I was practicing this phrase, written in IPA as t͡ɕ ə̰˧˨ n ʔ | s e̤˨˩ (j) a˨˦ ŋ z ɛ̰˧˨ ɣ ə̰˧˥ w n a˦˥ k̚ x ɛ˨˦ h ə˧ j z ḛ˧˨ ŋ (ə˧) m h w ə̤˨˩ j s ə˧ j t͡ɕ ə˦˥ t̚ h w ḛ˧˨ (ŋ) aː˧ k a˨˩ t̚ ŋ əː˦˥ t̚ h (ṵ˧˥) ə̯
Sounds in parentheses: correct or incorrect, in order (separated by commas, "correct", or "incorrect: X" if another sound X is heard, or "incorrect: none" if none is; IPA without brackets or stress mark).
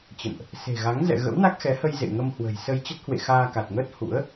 incorrect: ɣ, correct, incorrect: x, correct